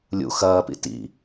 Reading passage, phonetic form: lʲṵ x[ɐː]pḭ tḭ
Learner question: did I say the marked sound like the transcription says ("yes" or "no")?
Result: yes